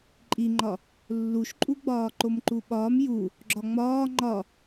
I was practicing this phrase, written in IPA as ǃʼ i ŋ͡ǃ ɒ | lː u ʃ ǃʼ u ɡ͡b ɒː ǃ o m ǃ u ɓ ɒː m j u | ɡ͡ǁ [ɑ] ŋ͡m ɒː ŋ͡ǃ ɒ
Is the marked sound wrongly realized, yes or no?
yes